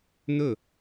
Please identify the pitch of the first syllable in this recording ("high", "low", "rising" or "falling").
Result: falling